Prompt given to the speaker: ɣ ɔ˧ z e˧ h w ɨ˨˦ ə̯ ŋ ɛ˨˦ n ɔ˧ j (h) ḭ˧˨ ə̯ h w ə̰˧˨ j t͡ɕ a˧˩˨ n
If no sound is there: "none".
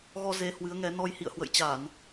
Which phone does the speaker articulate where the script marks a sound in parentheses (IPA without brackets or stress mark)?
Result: h